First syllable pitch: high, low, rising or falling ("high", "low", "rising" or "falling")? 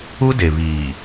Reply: high